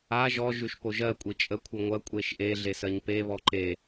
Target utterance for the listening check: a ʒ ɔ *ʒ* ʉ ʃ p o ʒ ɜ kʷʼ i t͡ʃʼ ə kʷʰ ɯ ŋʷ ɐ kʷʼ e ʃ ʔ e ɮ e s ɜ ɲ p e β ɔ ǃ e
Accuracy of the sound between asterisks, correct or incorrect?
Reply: correct